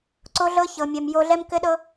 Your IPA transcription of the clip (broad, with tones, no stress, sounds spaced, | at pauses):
ǀ o˦ ɮ ɤ˦ ç ɤ˨ mʲ ɛ˨ m j o˧ ɮ ɛ˦ m k ɘ˦ ɗ ɤ˦